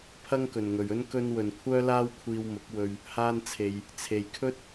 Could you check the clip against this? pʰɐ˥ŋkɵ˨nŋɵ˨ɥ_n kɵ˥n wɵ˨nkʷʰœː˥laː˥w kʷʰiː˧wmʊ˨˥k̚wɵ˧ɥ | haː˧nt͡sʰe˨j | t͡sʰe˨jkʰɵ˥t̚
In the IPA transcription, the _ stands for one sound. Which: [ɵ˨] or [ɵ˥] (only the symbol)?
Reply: ɵ˥